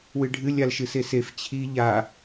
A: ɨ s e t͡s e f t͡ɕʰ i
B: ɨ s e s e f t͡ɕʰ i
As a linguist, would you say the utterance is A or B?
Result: B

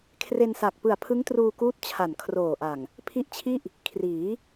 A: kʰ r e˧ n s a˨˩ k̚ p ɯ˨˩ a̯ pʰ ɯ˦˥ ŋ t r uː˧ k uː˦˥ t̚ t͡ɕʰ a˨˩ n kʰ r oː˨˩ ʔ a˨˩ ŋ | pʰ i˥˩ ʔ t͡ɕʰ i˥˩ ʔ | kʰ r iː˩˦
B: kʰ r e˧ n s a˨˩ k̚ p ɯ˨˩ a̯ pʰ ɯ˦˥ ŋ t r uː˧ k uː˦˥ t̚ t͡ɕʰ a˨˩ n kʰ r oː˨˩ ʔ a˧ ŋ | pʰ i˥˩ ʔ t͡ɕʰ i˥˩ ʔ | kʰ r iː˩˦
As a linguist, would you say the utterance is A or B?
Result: A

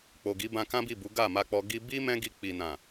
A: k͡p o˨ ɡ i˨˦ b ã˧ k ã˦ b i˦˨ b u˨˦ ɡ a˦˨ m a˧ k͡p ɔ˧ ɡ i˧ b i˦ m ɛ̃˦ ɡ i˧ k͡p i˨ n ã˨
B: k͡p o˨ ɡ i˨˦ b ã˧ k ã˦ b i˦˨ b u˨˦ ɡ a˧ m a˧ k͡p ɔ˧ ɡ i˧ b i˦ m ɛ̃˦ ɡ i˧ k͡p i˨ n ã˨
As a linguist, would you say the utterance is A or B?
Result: A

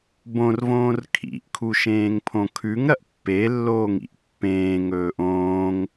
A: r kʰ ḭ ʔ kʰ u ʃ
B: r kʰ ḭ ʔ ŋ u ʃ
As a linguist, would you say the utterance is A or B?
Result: A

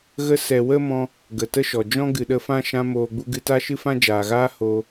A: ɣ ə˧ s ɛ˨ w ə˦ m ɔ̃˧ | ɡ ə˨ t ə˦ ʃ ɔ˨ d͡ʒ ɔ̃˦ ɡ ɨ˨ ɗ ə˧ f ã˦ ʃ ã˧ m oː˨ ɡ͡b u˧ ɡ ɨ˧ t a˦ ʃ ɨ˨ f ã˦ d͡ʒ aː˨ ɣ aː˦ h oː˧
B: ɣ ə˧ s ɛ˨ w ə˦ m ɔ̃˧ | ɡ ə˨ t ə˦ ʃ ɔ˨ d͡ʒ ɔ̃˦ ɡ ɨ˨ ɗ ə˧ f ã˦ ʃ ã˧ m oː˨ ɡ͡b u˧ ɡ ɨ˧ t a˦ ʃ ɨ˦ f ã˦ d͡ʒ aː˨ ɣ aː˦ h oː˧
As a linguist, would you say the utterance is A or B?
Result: B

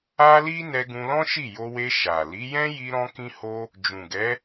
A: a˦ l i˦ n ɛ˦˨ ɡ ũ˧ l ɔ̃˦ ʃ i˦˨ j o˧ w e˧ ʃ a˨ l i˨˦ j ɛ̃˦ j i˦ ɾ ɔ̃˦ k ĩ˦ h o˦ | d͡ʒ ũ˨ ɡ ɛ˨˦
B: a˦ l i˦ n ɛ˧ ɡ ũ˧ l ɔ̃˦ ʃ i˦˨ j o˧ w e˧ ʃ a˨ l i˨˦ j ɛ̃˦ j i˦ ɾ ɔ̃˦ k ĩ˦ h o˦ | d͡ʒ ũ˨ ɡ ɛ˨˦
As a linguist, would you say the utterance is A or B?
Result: B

